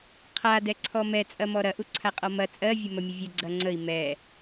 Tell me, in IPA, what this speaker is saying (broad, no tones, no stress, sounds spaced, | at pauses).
qʰ a d ɛ ǀʰ ɔ m ɛ t͡sʼ ɐ m ɔ ɾ ɐ ʔ u ǀʰ a qʼ ɔ m ɐ t͡sʼ ɜ vʲ ɘ m ɐ mʲ ə vʲ ɘ ɡ͡ǀ ɐ ŋ͡ǀ ə i̯ m ɛ